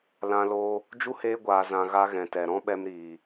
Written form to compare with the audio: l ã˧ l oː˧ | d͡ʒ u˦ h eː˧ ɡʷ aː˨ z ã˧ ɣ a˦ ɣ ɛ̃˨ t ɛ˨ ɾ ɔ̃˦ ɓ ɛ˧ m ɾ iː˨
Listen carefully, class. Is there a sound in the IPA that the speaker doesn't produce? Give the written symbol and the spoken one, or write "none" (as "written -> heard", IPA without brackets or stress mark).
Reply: none